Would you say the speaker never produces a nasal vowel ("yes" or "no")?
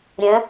no